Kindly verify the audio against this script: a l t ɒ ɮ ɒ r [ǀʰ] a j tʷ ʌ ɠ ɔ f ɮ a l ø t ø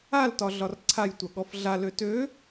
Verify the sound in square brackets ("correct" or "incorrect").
correct